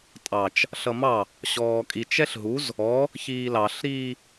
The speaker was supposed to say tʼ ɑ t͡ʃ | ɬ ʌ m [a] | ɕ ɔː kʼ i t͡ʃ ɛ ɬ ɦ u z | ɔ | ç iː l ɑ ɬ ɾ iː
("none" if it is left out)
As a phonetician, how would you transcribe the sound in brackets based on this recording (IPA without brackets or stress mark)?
ɑ